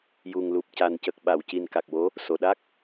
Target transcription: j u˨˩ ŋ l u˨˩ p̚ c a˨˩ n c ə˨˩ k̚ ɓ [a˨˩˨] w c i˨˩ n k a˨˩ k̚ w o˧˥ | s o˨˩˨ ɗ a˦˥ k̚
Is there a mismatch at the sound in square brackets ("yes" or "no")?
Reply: no